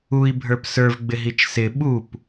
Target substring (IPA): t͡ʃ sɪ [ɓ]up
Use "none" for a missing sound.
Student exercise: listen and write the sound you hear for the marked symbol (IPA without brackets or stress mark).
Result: ɓ